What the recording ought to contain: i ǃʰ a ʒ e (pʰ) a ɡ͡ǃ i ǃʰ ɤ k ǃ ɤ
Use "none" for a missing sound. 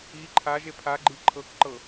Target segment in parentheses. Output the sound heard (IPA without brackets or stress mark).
pʰ